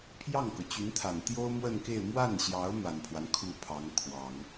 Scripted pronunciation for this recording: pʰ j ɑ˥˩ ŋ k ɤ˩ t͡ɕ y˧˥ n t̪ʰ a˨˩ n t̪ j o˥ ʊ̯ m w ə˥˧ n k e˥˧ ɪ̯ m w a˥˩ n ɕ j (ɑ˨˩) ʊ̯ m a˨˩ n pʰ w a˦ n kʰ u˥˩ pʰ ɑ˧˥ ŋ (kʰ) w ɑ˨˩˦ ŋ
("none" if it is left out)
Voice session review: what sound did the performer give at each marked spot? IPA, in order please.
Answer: ɑ˧˥, kʰ

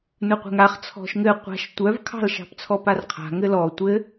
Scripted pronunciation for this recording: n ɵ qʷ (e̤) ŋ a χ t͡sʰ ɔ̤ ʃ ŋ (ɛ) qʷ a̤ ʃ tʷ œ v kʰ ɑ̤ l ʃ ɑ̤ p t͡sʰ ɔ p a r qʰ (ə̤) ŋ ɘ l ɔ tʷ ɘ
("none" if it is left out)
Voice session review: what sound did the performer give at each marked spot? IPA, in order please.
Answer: ɛ̤, ɘ, a̤

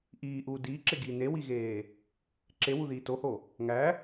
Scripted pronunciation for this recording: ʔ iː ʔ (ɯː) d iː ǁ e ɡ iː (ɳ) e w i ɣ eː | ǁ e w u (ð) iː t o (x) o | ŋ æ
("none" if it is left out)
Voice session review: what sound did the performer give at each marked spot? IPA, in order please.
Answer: uː, n, ð, h

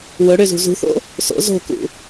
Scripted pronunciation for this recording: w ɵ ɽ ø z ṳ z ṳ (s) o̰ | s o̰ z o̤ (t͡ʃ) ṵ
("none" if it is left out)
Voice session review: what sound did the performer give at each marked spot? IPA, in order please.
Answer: θ, k

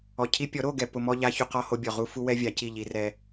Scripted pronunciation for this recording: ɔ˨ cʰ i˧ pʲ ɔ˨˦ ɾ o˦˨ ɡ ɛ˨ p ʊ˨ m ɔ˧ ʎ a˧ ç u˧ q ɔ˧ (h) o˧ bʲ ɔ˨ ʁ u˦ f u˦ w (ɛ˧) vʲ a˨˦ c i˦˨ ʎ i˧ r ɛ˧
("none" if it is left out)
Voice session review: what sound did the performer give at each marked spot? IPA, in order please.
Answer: h, ɛ˦

